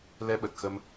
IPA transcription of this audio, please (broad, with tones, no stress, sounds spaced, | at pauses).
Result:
l ɛ˧ ɓ ə˨˩ t̚ x ə˧ m